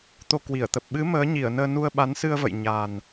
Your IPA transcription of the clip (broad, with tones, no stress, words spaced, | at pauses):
t̪o˧kwi˧˩ə̯t̪ə˨˩p̚ ɓɨ˨˦ məː˨˦ɲi˧˩ə̯nəː˧nu˧ə̯ ɓa˨˦nsɨ˧ə̯və̰˧˨j ɲa˨˩n